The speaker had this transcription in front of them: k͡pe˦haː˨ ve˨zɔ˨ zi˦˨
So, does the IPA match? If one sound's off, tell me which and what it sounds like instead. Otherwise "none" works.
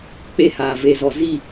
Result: none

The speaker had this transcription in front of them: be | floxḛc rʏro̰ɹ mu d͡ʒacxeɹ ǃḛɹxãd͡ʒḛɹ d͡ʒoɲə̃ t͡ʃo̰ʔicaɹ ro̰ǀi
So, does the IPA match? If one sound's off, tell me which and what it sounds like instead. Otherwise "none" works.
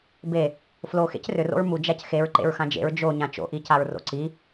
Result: ə̃ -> ã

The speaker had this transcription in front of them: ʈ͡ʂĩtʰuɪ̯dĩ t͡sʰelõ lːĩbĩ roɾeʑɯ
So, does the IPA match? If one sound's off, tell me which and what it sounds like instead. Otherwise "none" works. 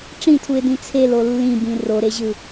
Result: õ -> o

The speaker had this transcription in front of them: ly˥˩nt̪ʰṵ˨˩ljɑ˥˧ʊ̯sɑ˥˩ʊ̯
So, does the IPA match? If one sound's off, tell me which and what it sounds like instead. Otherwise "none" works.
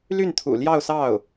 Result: none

